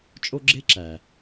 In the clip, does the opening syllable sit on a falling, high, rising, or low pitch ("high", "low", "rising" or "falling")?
high